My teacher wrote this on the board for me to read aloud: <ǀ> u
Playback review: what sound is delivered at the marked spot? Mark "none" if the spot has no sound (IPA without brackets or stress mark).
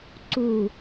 ǀ